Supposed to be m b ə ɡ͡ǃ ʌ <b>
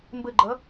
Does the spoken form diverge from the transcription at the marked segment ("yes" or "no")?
yes